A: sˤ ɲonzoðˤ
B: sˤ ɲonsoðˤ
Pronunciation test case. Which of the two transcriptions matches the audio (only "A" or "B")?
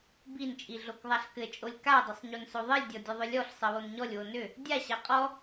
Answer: B